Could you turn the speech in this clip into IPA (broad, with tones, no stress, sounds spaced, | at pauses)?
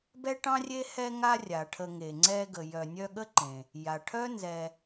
b ɛ˥ ʈ ɑ̃˥ rʲ e˥ h ɛ˦ ŋ a˦ rʲ a˩ ʈʰ ə˨ ŋ e˩ ŋ͡ǀ ɛ˦ ɡ ə˨ j œ˨ nʲ œ˦ ɠ ə˥ ǃ ẽ˩ | j a˩ ʈʰ œ˥ n z ɛ˨